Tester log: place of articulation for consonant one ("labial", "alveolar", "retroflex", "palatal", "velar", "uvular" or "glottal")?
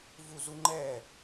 labial